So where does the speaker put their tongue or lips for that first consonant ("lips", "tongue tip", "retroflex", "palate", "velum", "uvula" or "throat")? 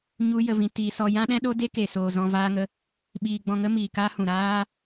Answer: palate